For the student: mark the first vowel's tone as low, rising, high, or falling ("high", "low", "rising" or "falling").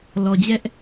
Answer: low